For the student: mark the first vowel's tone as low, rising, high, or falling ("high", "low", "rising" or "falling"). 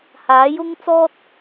rising